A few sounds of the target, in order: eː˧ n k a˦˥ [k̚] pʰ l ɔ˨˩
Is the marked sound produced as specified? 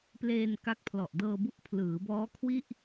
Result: yes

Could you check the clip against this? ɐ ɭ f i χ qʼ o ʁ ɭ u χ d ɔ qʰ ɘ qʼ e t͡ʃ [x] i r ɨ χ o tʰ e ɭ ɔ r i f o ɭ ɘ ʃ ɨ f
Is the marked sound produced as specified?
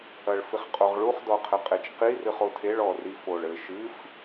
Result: no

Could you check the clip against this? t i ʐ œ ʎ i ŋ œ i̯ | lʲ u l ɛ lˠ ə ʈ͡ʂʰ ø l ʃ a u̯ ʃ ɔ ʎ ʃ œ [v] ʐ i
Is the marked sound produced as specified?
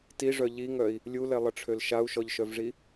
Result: yes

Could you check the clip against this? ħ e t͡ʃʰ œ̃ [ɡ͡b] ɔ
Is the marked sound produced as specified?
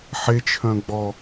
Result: yes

